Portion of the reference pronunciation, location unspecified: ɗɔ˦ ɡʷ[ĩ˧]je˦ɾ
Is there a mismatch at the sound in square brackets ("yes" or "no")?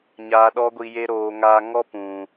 yes